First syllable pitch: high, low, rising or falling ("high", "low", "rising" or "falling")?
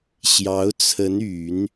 rising